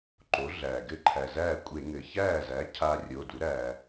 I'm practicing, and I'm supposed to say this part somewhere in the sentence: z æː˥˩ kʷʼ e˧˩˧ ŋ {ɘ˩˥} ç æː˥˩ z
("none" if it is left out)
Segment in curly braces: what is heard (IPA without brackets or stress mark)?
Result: ɘ˩